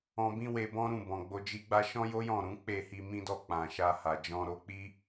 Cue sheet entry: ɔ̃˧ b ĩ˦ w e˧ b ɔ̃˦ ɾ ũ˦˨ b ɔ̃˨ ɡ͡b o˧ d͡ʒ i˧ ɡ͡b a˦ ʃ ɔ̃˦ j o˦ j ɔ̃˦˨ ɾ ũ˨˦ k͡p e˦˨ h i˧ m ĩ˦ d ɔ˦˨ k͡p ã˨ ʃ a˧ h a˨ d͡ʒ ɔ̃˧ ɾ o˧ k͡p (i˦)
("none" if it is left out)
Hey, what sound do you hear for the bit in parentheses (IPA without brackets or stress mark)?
i˦